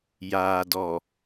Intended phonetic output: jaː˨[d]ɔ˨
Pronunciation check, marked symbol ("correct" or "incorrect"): correct